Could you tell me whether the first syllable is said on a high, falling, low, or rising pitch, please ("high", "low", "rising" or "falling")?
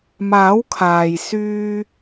rising